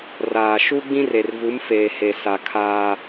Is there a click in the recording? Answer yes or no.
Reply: no